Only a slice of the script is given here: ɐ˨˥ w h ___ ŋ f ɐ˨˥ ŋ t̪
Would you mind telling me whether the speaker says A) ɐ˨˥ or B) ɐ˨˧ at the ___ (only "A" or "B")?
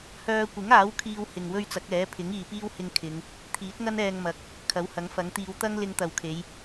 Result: A